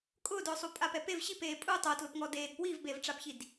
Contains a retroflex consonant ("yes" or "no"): yes